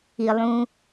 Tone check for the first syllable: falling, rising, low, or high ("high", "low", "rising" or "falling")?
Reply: low